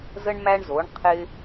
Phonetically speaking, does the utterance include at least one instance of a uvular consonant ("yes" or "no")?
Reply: yes